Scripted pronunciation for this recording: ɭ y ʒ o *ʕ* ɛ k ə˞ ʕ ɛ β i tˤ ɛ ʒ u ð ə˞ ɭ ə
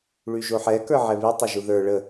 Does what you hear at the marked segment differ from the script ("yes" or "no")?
yes